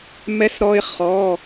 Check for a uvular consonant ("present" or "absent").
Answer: present